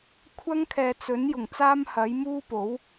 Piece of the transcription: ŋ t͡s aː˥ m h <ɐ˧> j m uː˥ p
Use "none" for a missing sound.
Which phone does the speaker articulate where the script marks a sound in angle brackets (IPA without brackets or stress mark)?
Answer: ɐ˨˥